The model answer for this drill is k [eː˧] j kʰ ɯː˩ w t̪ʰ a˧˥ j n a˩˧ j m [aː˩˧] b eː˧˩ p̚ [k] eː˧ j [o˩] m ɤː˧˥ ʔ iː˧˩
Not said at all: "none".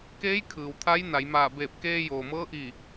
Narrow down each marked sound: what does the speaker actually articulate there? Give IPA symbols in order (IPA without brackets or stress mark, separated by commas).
eː˧˥, aː˧˩, k, oː˩